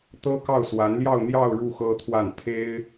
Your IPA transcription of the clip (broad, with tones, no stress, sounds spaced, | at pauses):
t̪ ɤ˥ k ɑ˥˩ ʊ̯ s w a˧˥ n l j ɑ˥˧ ʊ̯ n̪ j ɑ˥˧ ʊ̯ ɻ u˥˩ x ɤ˥ t̪ʰ w a˥˩ n t̪ʰ e˥ ɪ̯